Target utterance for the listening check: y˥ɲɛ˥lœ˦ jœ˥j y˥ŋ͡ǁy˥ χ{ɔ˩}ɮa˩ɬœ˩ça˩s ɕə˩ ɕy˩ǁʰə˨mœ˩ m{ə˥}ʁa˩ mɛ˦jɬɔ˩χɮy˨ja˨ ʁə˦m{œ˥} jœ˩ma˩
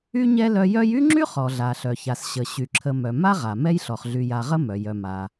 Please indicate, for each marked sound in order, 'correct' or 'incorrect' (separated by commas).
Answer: correct, incorrect, incorrect